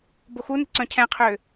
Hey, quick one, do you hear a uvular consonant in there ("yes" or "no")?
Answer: yes